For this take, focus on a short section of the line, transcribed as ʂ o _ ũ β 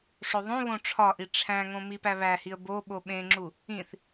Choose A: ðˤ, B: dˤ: A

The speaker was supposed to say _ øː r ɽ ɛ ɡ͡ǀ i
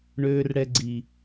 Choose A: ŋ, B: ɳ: B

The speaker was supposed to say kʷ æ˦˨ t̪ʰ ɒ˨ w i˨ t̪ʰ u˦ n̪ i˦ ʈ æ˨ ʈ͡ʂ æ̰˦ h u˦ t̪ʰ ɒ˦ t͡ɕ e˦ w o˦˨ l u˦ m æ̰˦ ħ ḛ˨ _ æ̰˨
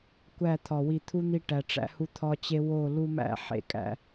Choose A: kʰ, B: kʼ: B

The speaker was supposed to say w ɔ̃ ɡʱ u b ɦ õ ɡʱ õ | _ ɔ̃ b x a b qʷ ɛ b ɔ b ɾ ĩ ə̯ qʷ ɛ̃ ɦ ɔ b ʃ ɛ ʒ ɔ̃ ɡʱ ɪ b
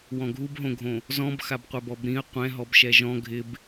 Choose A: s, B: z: B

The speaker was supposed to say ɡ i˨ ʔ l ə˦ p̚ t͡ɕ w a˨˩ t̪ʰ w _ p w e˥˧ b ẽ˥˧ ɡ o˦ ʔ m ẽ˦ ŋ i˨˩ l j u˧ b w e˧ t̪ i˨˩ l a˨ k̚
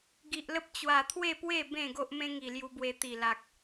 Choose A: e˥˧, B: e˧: A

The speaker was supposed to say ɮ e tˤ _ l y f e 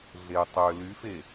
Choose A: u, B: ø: B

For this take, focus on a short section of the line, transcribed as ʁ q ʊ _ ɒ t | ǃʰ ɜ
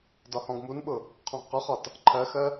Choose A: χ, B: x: A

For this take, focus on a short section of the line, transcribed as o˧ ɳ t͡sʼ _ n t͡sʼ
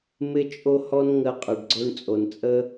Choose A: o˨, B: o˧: A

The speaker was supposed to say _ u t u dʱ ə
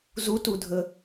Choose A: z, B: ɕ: A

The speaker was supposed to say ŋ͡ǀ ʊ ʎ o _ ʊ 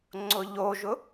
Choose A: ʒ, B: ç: A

